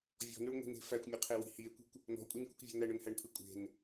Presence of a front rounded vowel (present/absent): absent